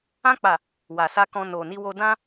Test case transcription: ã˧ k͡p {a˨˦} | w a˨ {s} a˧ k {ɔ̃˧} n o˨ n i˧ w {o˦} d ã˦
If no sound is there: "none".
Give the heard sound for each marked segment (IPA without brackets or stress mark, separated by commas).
a˨, s, ɔ̃˧, o˧